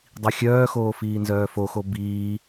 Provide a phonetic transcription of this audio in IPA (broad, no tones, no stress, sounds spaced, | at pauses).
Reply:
dˤ i xʲ œː x oː f iː n z œː f o x o b iː